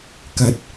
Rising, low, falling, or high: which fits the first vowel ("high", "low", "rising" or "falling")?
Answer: rising